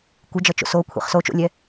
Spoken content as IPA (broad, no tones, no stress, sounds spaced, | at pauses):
kʷ ɯ d͡ʒ ʌ t͡ʃ o̰ s o kʷʰ ḭ χ s o t͡ʃ o̰ lʲ ɛ